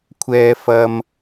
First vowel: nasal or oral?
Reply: oral